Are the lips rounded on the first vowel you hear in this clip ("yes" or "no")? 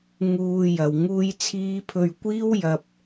yes